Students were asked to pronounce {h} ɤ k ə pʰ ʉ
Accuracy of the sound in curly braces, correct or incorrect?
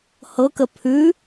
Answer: correct